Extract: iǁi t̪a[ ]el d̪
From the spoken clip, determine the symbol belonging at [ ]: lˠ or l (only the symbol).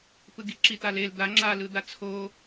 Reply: l